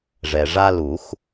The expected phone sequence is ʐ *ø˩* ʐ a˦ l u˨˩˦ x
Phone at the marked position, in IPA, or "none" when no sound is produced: ɛ˩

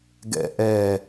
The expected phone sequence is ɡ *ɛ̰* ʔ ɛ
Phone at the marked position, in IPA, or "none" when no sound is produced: ɛ̰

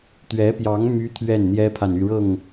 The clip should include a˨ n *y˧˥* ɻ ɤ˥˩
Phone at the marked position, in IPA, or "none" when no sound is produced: y˥˧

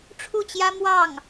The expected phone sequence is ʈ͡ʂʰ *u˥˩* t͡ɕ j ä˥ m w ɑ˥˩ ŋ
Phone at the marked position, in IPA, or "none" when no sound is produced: u˥˩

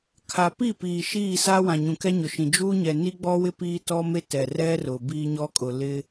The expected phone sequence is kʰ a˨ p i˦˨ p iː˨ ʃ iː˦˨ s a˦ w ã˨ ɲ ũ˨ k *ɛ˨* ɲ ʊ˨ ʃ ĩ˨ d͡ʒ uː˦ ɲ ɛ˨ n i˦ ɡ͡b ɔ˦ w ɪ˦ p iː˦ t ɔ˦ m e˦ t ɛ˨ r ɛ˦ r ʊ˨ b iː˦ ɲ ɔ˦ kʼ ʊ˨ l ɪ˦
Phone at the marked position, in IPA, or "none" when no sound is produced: ɛ˦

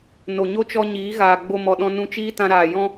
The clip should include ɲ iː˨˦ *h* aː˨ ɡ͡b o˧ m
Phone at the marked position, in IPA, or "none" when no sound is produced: ɣ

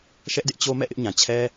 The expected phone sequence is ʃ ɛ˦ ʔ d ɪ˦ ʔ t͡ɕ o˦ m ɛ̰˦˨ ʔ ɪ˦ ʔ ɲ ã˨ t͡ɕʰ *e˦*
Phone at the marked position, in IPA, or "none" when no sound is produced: ɛ˦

